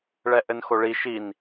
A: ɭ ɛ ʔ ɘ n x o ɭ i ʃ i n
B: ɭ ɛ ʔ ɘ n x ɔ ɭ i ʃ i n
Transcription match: A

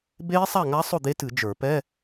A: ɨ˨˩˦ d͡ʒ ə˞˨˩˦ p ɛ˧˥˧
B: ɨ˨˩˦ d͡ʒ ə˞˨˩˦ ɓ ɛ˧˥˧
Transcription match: A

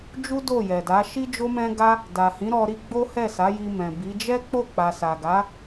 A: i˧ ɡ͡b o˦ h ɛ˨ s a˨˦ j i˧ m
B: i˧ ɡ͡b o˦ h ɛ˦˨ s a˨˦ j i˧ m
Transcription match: B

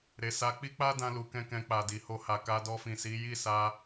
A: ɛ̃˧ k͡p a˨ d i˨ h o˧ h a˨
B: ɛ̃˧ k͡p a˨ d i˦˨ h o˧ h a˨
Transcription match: A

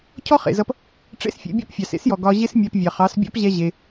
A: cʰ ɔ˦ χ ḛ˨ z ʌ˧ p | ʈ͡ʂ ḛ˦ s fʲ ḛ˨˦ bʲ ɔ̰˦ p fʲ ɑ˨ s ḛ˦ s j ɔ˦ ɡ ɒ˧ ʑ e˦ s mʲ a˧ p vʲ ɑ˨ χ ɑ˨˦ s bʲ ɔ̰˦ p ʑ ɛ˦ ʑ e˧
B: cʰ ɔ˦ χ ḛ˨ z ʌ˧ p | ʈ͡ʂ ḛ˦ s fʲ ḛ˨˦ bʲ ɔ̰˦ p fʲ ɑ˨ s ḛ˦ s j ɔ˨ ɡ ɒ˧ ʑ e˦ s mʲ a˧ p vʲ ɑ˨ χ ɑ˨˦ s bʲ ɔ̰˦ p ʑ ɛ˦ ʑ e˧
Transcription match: B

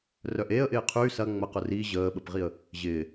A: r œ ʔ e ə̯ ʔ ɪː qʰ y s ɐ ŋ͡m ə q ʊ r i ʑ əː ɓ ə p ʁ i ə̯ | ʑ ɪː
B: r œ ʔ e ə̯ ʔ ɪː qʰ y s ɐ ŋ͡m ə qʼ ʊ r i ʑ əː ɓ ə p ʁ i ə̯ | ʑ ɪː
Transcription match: A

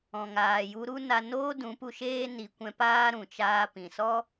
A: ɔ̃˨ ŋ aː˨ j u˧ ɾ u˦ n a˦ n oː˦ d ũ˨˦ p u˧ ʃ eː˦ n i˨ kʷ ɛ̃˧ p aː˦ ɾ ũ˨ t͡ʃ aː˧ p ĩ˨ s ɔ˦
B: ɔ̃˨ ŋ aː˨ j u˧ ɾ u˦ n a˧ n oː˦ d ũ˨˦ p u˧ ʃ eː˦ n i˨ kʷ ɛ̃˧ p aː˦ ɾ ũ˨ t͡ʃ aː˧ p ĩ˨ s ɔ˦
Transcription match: B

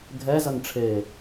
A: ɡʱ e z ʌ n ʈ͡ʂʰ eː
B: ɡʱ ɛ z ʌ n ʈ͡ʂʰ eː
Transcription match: B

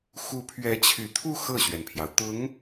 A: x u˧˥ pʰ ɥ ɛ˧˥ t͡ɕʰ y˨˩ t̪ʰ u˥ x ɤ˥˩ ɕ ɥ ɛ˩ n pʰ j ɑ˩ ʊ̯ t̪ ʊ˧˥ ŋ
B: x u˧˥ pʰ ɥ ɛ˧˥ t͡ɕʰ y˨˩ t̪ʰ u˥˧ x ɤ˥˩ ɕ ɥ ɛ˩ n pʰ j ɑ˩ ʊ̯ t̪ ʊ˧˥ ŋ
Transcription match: B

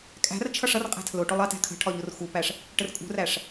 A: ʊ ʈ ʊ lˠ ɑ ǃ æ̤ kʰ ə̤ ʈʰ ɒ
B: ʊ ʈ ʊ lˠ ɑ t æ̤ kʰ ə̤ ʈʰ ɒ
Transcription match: B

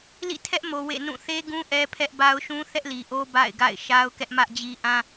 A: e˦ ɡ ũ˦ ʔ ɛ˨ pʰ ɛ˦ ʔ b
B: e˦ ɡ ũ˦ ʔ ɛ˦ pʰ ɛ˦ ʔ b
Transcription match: B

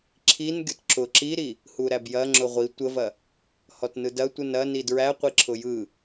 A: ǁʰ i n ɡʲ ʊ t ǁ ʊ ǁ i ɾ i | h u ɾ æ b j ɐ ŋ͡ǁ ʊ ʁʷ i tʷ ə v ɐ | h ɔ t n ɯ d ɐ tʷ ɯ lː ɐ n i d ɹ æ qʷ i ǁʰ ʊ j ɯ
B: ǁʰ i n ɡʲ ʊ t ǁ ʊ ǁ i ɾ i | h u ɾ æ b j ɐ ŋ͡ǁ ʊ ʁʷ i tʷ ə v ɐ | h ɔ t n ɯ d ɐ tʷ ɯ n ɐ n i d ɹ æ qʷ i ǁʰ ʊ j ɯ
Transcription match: B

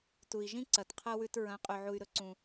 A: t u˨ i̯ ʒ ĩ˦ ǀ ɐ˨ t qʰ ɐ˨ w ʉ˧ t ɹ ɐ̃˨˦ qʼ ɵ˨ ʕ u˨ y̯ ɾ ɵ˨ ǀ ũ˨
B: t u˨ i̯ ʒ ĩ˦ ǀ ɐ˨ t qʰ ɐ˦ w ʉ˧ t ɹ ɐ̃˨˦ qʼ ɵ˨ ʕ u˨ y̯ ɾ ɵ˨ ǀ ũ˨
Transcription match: B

